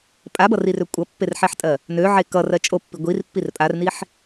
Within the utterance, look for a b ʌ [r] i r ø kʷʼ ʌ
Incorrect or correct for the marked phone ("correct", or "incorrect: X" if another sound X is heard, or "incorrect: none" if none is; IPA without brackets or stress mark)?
correct